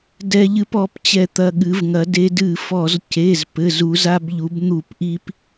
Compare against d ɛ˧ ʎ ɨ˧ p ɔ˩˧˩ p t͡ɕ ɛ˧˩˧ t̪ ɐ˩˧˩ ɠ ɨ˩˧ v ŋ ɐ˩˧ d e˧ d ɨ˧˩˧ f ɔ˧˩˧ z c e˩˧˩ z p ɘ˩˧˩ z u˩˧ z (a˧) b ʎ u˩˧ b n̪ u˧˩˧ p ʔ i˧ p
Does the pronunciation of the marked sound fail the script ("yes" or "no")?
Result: no